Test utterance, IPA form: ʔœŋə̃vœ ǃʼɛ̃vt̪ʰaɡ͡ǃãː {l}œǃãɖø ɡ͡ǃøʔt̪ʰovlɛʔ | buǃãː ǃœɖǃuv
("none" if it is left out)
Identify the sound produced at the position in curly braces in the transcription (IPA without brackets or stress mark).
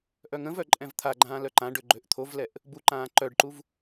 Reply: l